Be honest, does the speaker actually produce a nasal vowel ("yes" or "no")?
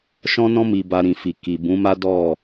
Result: yes